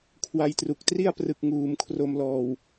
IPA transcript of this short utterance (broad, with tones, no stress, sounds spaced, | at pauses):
kʰ w a˧ j t r u˨˩ k̚ t r i˥˩ a̯ p r ɯ˨˩ k̚ ŋ uː˩˦ m kʰ r o˧ m l ɔː˨˩ w